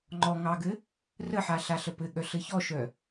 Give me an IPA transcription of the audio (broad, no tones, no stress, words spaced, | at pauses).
ŋ͡ǃɔ ŋɑɡɘ | rəħa ɬaɬəpɘɠœ ɬɘçɔʃœ